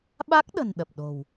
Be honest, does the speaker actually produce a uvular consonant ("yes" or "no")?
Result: no